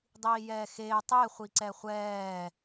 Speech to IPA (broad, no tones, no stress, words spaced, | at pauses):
dˤiːjɛːxeː tˤe χʷiǀɛχʷɛː